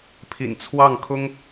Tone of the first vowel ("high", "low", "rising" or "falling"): low